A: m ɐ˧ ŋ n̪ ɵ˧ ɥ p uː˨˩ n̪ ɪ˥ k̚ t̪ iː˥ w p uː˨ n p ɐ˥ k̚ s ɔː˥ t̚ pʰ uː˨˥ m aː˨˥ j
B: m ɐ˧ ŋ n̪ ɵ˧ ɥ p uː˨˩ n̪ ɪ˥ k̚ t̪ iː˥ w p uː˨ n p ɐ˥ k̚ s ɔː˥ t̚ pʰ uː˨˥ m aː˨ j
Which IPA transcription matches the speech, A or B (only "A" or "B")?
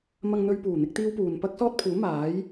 A